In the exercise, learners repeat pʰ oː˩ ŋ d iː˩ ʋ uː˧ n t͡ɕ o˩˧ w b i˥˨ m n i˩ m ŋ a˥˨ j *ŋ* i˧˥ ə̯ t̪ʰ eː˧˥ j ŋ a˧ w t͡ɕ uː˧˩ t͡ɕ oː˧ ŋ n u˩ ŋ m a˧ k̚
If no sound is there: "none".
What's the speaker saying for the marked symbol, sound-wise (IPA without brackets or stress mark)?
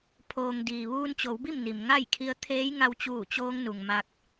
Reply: kʰ